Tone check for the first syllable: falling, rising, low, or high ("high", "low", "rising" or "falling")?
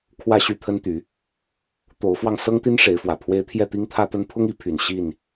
falling